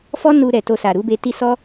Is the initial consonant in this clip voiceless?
yes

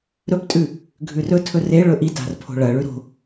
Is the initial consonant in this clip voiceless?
no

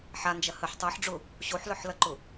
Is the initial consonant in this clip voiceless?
yes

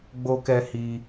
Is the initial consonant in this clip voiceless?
no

